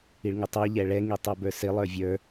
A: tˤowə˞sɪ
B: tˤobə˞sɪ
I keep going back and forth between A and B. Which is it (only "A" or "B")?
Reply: B